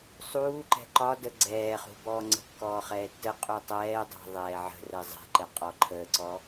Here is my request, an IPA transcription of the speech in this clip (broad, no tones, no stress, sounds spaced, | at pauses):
sˤ uː ǃ ɛ̤ ǃ ɒ d ə ɡ͡ǀ ɛː χ ṳ b ɔː ŋ͡ǀ ə̤ kː ɔː χ ɛː tː ə qʼ u tˤ ɛː dˤ ɛ̤ ðˤ ɛː ʕ ə̤ r ɛ zˤ ɛ̤ ǃ ɛ qʼ ɔ ǃʰ əː ǀ ɔ